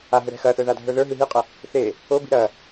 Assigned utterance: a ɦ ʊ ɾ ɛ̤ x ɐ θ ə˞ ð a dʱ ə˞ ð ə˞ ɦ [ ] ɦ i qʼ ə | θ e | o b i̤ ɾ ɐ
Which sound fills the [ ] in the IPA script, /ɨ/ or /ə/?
ɨ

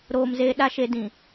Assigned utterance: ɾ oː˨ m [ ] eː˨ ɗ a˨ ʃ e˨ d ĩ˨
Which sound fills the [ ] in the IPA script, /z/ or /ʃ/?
z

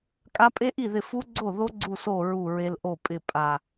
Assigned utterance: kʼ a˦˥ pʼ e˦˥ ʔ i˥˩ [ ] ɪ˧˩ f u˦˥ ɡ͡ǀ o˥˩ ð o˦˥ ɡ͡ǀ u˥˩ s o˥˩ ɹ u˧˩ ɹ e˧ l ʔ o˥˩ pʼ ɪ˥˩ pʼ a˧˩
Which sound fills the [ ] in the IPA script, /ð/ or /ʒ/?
ð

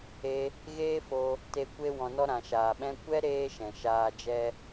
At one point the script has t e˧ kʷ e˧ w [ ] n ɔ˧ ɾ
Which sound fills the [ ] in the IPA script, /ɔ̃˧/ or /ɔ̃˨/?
ɔ̃˨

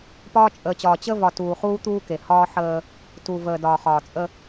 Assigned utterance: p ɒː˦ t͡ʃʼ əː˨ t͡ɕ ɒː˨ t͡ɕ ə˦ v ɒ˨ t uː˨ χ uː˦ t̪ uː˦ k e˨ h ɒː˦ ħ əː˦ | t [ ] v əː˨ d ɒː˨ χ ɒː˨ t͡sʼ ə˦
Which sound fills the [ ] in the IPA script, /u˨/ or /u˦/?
u˨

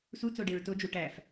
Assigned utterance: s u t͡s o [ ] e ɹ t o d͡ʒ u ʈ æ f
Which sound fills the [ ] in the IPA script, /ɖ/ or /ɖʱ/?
ɖ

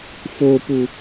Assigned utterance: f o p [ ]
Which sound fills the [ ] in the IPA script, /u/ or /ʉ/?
u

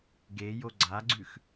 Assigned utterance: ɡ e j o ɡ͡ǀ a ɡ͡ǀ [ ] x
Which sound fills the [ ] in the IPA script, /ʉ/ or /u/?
ʉ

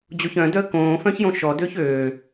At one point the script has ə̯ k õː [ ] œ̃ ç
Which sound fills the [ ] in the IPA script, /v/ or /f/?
f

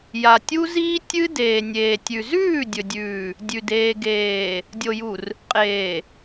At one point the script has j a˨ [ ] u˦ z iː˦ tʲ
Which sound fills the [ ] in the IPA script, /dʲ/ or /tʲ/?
tʲ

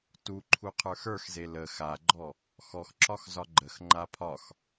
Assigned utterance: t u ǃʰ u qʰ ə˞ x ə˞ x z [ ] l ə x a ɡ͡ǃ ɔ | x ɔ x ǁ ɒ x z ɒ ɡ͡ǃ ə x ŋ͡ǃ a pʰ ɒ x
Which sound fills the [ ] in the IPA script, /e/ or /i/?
e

